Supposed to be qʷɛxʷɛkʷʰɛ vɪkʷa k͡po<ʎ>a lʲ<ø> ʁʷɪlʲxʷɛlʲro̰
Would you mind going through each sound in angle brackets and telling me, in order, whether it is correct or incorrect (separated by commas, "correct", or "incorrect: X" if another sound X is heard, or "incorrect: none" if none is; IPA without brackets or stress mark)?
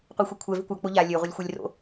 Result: correct, correct